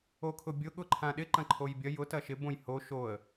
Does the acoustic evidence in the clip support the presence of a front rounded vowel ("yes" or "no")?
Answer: no